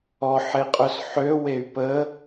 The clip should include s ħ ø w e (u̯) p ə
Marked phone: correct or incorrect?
incorrect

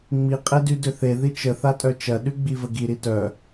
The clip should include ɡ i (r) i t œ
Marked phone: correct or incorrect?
incorrect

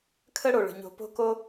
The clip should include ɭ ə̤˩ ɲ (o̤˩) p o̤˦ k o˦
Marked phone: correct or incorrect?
incorrect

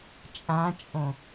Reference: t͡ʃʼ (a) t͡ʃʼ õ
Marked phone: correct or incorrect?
incorrect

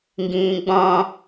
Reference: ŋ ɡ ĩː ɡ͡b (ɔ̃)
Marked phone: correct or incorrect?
correct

